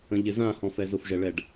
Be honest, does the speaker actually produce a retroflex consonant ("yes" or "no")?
yes